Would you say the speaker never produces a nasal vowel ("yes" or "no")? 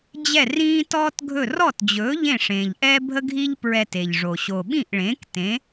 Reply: no